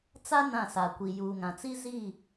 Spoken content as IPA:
t͡s a˦ n ã˦˨ s a˨ kʷ i˨ j uː˨ ŋ ã˨ t͡s i˦ z i˦˨

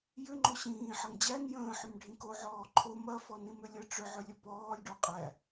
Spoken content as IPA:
j ʏ ŋ͡ǃ o ɕ ĩː ħ ɐ ŋ d͡ʑ æ n j ə̃ː ħ ʏ m ɖʱ ĩ k o ʕ ɔː ǃʰ o m ɐ f ɔ n ĩ m ʏ lʲ ə ʈ͡ʂ ʏ ʕ ʏ lʲ ə p ɔː lʲ ɖ o qʼ æ

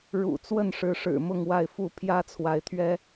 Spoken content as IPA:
ɻ ṵ˨˩ t͡s w ə˥˨ n ʂ ɻ̩˨˦ ʂ ɻ̩˨˩ m ʊ˥˨ ŋ w a˥˨ ɪ̯ f u˥˨ pʰ j ä˦ t͡sʰ w a˨˦ ɪ̯ t̪ʰ ɥ ɛ˦

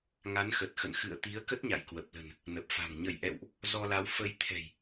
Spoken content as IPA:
ŋ a˨˦ n x ə˨˩ t̚ x ə̰˧˨ n x ɨ̰˧˨ ə̯ t̪ i˨˦ ə̯ k ə˦˥ t̚ ɲ a̰˧˨ j k w ə˨˩ p̚ l ə̤˨˩ n | n ə˨˩ p̚ f a̤˨˩ ŋ ɲ ə˧˩ j ʔ ɛ̰˧˨ w ʔ | z ɔ˧ l a˨˦ w f ə˧ j t̪ʰ ɛ̤˨˩ j

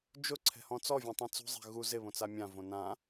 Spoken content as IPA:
d͡ʒ ʊ ǀʰ ɛ̤ h ɔ̃ t͡s ɔ vʲ õ tˤ ɛ̃ t͡s ṳ zˤ ɛ̤ ɣ u z ɪ β õ t͡s a mʲ ã v õ n ã

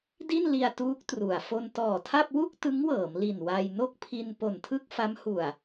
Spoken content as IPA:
d i˥˩ n l i˧ a̯ t uː˦˥ k̚ t r u˨˩ a̯ f o˧ n t ɔː˨˩ tʰ a˥˩ p̚ w u˥˩ k̚ t ɯ˦˥ ŋ w ɤː˩˦ m l i˨˩ n w a˧ j n o˥˩ k̚ pʰ i˧ n p o˨˩ n tʰ ɯ˥˩ k̚ f a˦˥ m h u˨˩ a̯

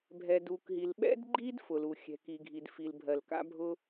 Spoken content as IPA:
bʱ ɛ˩ d u˩ k ɦ i˩ l ɓ ɛ̰˥ d ɡ͡ǃ i˥ d f ʊ˩ l u˩ xʲ ɛ̤˩ k i˩ ɡʱ i˩ d f i˩ l bʱ ɜ˩ l k a̰˥ bʱ ʊ˥

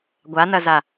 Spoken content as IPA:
ɡʷ a n ɐ z a

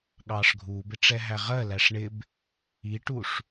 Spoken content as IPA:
ɠ ɑː ʂ ɡʱ uː b ɪ ʈ͡ʂ ɛ ɦ æ ʁ ɜ l æ ʂ ɳ ɪ b | i ʈ u ʂ

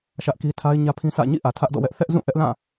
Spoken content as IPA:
ʃ ä˦ ʔ k i˦ tʰ a˦ ɪ̯ ɲ ä˦ pʰ ĩ˦ s ä̰˦˨ ɲ ḭ˦˨ ʔ ä˨ tʰ ä˦ ʔ d ɔ̰˦˨ w ɛ˦ ʔ θ ɛ˦ ʔ z ũ˦˨ ʔ ɛ˦ ʔ l ã˦˨

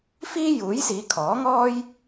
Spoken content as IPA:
f iː˥ j uː˨˥ j s iː˨˧ kʰ ɔː˨˥ ŋ ɔː˥ j

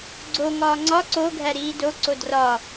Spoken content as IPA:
ɡ͡ǀ o ŋ ɒː ŋ͡ǀ ɒ ǀ o ɡʱ æ ɾ iː d o ǀ o d r ɒ

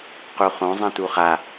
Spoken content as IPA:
q u χ õ zˤ ĩ t u χ a

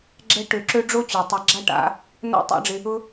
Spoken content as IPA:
ɡ͡ǁ ɛ˦ ʈ ø˧ ǁ ø˦ ɖ͡ʐ o˦ t͡ɕ ø˨ tˤ ɐ˧ ɡ͡ǁ a˦ ʈ a̰˨˦ | n o̰˦ tˤ a̰˦ ɖ͡ʐ ɪ˧ | ʊ˦

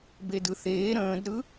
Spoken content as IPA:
b e d ɯ θ eː ɾ ə̃ː d ɾ ɯ

